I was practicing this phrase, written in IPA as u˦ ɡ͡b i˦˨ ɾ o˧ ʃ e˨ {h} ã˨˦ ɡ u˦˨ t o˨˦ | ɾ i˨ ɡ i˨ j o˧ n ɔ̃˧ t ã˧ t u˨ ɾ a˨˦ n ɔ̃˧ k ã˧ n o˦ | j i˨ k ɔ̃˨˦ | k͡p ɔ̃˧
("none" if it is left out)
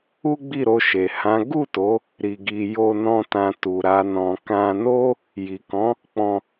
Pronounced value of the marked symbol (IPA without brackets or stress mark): h